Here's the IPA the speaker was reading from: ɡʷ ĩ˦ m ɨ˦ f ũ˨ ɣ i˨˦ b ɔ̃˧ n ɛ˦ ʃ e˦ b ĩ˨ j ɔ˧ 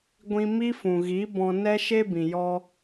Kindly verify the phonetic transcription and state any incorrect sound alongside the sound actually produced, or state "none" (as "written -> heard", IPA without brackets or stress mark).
ɨ˦ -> i˦